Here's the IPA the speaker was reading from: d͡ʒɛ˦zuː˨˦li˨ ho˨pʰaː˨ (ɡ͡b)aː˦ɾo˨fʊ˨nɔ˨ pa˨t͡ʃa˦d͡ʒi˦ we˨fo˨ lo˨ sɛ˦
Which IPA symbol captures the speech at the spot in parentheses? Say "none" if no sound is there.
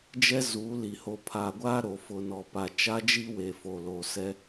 ɡʷ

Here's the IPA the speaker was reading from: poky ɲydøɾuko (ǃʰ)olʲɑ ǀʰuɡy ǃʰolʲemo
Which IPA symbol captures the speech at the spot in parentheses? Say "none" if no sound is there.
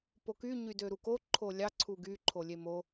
ǃʰ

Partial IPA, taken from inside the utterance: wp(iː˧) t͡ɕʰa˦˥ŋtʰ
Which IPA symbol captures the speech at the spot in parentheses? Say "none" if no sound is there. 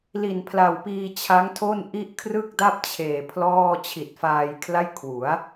iː˧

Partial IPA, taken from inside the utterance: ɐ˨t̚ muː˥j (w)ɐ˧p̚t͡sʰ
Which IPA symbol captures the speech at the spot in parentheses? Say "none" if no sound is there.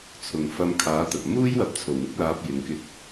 w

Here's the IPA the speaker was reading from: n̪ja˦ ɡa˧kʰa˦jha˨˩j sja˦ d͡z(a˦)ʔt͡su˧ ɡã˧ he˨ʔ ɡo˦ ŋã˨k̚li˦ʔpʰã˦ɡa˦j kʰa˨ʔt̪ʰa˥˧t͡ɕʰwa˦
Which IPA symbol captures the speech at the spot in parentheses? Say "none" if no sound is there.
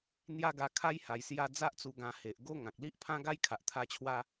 a˦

